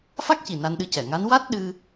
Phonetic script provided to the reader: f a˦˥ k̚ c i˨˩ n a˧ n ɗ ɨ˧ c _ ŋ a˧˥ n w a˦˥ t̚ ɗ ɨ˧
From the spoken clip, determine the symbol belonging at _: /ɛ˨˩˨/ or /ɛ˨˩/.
ɛ˨˩˨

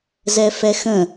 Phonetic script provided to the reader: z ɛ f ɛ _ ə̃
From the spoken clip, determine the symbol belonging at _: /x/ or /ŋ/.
x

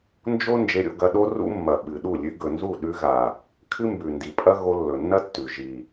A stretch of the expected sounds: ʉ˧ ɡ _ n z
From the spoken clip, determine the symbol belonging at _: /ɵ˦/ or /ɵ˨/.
ɵ˨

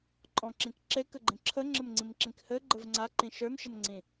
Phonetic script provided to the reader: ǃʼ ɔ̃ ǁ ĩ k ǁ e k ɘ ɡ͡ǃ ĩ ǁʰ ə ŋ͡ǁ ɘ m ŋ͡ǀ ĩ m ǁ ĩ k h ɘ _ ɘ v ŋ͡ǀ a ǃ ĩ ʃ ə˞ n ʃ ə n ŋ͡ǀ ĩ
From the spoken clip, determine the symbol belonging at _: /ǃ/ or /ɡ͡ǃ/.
ɡ͡ǃ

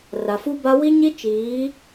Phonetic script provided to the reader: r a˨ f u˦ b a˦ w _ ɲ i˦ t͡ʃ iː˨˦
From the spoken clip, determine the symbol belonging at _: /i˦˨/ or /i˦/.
i˦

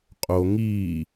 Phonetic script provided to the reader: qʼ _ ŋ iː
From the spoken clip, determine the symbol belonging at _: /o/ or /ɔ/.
o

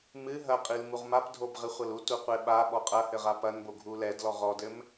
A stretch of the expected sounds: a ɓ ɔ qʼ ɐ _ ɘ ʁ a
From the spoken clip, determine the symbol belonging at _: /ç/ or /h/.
h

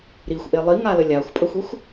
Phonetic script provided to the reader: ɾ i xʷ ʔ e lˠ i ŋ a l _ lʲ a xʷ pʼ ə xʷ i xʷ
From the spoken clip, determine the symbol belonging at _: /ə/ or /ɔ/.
ə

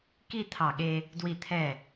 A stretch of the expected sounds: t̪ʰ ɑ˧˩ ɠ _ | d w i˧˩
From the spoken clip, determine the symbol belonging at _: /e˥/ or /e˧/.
e˧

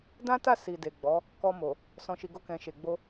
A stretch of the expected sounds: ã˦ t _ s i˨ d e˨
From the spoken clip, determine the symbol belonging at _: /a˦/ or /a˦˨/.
a˦˨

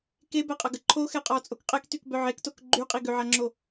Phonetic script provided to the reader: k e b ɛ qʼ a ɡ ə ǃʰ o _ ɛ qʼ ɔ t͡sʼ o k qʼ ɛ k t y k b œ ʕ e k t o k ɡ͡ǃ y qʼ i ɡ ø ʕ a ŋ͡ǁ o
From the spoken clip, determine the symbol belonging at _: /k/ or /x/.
x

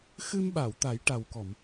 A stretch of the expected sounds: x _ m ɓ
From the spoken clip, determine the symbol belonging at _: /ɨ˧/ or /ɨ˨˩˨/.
ɨ˧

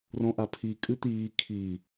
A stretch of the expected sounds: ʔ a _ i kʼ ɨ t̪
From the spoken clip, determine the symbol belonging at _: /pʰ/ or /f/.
pʰ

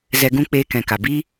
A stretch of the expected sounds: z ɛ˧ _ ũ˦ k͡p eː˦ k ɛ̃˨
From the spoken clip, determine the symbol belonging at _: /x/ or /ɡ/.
ɡ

